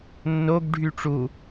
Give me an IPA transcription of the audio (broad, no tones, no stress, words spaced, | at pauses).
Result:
nːoɡɖʱy ʈ͡ʂu